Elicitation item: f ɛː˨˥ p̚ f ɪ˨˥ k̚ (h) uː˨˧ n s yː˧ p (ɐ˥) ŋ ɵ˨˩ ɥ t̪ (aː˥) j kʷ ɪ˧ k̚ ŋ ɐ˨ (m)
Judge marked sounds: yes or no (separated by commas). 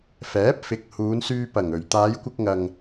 yes, no, no, no